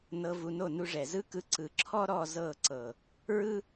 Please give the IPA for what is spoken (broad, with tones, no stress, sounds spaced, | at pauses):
n ɤ˧ v u˧ n o˦˨ n u˧ ʐ ɛ˨ z ɯ˦ k ɯ˧ ǀ ɯ˨ ǁʰ ɔ˦ ɾ ɔ˦˨ z ɤ˦˨ ǀ ɤ˨ | ɹ ɯ˦